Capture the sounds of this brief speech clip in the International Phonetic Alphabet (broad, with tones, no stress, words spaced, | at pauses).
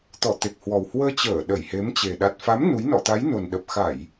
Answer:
t̪ɔ˧˩t̪e˨˩k̚hwɔ˨˩w hwəː˧t͡ɕəː˧˩ ɗə˧˩jhe˨˦mt͡ɕe˨˩ ɗa˨˩t̚fa˨˦m nu˨˦jnɔ̰˧˨ t̪a˨˦jno˨˩nɗə˨˩p̚ xa˧˩˨j